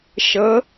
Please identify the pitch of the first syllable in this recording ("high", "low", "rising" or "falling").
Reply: rising